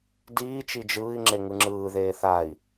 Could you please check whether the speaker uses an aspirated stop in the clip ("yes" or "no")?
no